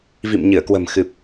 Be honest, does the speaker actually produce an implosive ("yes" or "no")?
no